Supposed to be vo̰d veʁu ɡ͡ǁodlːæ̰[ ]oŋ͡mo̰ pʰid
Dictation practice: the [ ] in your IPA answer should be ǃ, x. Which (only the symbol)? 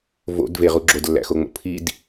x